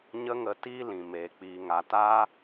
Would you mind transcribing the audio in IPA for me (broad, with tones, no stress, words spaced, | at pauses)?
ɲə˦ŋə˧ tiː˦lĩ˨meː˨ k͡piː˨ŋa˨ ta˦